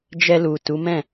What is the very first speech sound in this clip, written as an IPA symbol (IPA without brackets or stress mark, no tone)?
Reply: d͡ʒ